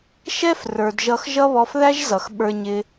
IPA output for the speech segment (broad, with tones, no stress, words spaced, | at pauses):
ʃɛ˦f rə˞˨dʒʌ˧x ʒʌ˦βɔ˧fðæ˦ʒzʌ˨x ɓə˞˧ɲɪ˧